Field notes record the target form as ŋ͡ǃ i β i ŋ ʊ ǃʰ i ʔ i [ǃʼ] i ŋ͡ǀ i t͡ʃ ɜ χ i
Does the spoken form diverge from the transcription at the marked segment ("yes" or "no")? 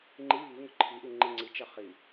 yes